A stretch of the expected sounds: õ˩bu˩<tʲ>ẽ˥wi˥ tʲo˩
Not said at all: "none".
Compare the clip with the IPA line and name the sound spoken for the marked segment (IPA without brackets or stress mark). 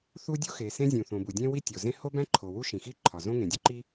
dʲ